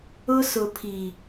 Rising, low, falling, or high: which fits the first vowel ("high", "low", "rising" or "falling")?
high